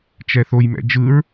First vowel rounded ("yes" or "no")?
no